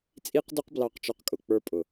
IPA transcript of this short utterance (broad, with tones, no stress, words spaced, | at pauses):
t͡sʼi˦qdʊ˦q blɑ˦˨qt͡ʃɔ˦qkʼʊ˧ k͡pə˞˧pʼʊ˨